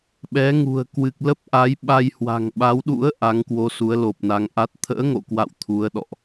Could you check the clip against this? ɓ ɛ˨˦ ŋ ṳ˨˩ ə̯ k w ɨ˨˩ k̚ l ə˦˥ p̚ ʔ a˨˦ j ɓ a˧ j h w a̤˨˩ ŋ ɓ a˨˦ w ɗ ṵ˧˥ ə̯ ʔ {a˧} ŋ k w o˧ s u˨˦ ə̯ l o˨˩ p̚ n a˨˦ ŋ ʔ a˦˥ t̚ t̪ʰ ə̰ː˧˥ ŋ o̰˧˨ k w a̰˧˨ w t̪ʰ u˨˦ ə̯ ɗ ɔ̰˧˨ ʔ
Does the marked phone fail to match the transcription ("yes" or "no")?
yes